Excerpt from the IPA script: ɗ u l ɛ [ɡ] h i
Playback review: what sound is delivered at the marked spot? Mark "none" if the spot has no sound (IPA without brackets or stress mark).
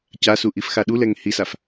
ŋ